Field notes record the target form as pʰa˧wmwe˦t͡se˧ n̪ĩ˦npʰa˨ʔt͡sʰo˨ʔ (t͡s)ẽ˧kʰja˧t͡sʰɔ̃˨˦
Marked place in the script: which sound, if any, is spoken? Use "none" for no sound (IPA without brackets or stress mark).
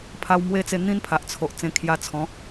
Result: t͡s